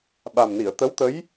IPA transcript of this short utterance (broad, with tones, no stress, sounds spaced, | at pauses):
ɓ a˨˩ m n i˨˩˨ ə̯ t̪ ə˧˥ w t̪ ə˧˥ j